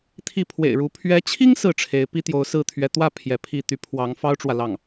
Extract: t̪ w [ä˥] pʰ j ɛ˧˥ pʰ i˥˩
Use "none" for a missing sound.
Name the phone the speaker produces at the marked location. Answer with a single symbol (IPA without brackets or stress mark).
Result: ä˥˩